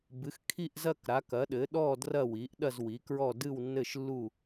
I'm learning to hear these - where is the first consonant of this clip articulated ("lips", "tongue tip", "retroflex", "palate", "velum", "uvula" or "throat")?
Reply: lips